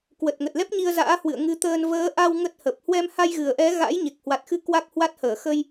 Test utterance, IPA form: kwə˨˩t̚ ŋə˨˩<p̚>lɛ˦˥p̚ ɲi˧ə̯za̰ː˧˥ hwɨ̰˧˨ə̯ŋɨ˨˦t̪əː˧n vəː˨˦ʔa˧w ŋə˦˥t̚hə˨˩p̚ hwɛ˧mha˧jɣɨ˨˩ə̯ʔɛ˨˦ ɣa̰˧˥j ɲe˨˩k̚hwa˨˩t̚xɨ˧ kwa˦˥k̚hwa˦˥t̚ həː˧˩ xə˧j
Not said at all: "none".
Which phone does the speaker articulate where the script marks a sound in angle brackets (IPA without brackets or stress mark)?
t̚